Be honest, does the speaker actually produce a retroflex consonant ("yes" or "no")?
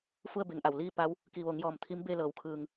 no